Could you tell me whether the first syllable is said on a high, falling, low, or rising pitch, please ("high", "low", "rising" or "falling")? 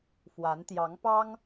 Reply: rising